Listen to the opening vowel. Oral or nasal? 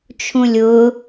nasal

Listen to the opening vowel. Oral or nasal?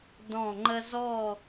nasal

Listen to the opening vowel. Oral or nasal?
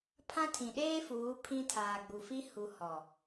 nasal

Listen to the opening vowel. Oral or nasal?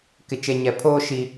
oral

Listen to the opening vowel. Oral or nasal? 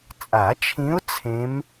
oral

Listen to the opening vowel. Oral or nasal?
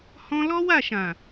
nasal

